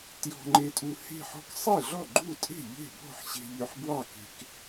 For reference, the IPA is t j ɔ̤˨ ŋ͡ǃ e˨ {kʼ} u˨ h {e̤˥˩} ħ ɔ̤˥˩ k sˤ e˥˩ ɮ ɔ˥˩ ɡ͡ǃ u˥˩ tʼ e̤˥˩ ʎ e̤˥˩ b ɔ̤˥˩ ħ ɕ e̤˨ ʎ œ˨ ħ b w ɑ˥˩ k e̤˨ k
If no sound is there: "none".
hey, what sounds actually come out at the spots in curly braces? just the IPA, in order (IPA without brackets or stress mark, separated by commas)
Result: tʼ, e̤˥˩